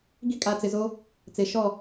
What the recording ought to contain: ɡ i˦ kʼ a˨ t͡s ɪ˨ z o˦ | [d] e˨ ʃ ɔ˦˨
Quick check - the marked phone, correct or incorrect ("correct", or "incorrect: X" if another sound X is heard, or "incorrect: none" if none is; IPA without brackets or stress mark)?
incorrect: t͡s